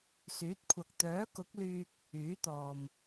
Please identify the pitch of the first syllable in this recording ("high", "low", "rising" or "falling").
rising